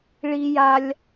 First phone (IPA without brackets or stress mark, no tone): ɭ